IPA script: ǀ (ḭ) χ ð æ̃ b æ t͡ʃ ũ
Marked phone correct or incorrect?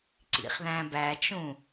correct